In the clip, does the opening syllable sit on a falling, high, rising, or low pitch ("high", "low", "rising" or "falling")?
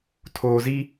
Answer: low